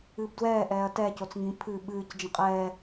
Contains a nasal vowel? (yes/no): yes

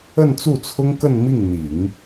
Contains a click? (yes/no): no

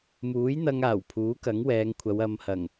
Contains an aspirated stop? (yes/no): yes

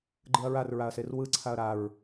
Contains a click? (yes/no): yes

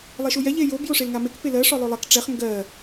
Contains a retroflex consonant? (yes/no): yes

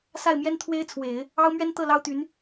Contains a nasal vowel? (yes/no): no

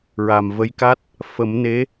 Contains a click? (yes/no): no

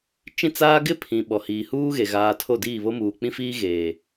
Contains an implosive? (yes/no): yes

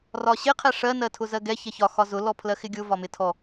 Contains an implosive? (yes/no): no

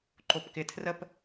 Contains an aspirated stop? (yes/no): yes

